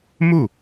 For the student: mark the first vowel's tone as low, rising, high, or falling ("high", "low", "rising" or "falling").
falling